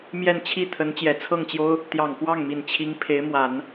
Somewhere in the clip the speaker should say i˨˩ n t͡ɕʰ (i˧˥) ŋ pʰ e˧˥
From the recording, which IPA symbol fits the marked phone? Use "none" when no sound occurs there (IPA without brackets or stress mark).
i˧˥